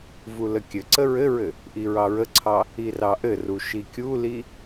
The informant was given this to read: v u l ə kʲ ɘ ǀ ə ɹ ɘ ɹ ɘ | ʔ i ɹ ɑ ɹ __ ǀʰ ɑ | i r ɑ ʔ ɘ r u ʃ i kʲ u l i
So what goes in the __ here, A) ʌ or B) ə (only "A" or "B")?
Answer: B